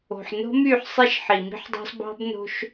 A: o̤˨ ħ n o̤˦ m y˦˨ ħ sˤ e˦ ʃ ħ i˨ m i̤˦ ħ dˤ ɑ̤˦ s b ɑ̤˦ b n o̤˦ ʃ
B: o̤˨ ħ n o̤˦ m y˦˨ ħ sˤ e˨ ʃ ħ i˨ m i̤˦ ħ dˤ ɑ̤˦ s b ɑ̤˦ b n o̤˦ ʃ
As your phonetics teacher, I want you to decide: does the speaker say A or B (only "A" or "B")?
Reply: A